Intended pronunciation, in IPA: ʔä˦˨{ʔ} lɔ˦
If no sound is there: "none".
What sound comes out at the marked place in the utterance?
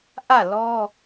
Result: none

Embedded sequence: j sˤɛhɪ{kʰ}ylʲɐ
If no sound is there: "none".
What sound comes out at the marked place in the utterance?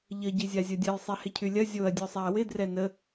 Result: cʰ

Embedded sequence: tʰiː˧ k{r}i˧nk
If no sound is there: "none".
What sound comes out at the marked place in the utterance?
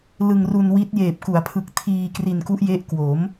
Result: r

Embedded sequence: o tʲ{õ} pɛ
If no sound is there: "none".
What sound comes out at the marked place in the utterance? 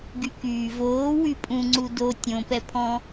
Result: õ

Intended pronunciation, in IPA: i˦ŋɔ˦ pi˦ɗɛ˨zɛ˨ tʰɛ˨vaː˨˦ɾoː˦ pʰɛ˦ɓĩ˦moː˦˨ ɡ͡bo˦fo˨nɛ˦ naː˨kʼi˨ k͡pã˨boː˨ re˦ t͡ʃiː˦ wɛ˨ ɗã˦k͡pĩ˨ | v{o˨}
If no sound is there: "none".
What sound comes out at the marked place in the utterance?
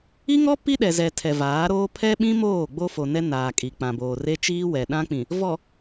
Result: ɔ˨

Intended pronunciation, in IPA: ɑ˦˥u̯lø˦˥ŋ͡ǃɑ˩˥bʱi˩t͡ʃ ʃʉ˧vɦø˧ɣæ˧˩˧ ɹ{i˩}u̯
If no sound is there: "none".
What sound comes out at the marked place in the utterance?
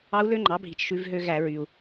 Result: y˩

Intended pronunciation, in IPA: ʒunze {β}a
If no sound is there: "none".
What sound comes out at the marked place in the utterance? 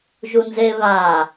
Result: β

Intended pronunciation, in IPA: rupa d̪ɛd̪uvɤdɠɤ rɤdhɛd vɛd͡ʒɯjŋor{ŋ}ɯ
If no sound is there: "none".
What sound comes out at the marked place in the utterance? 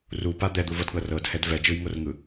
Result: ŋ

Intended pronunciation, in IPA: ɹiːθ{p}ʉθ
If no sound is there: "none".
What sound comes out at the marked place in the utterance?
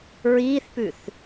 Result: p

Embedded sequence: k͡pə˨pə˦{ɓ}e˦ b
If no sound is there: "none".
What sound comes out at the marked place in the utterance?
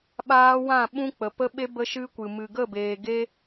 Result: ɓ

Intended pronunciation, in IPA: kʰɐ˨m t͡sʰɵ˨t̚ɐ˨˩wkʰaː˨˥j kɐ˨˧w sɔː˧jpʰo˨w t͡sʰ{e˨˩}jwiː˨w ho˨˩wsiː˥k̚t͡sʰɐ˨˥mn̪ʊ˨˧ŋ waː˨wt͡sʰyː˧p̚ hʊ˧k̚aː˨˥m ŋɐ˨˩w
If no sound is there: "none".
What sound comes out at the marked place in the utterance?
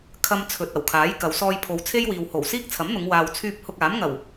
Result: e˥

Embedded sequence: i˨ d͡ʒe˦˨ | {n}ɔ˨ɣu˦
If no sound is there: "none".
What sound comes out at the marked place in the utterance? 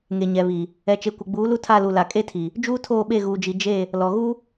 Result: l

